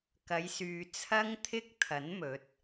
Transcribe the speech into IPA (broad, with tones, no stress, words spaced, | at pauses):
kɐ˨˧jsyː˨ t͡sʰɐ˥ŋt̪ʰɪ˥k̚t̪ʰɐ˨˥n mɵ˨˥t̚